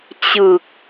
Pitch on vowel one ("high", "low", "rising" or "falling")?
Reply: low